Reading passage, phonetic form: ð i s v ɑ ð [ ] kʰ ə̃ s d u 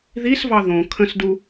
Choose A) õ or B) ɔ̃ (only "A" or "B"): A